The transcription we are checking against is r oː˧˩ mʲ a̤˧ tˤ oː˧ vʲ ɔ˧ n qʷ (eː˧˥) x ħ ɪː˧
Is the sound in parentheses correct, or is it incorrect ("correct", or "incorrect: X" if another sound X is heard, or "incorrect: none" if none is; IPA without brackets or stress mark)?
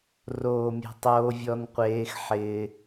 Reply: correct